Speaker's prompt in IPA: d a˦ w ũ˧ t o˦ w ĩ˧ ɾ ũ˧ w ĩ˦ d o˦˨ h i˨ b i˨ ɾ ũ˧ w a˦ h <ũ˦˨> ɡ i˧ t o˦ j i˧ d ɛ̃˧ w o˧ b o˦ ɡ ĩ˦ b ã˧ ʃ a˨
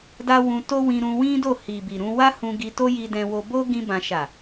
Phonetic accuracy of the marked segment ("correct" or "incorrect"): incorrect